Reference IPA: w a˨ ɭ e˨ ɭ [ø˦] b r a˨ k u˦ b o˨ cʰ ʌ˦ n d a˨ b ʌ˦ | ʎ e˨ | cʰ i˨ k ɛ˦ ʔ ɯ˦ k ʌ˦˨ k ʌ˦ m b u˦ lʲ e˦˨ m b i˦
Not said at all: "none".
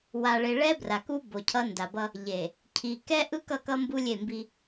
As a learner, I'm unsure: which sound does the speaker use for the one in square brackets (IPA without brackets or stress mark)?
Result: ɛ˦